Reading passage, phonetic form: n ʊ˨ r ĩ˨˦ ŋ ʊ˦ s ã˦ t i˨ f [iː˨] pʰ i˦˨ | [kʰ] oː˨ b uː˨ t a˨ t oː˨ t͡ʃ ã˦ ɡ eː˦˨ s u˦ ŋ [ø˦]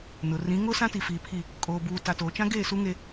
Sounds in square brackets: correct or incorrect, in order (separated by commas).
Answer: correct, incorrect, incorrect